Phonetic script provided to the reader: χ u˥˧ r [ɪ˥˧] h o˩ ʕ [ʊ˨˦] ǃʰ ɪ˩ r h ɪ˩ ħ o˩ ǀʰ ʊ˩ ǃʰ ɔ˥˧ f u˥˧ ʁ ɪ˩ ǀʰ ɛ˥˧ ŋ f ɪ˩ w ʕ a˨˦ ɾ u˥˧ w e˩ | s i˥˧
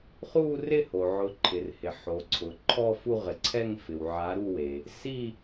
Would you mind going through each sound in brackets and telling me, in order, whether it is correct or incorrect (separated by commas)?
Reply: correct, correct